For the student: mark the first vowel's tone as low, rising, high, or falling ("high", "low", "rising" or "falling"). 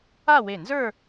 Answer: falling